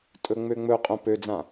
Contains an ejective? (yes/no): yes